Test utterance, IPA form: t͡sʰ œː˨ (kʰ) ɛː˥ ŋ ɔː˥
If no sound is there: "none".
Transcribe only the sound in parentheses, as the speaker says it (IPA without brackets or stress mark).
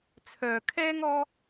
kʰ